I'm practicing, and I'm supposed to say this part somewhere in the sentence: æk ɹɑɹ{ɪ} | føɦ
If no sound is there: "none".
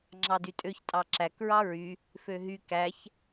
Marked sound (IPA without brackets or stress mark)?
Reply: y